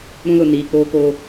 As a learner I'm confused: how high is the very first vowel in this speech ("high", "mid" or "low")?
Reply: high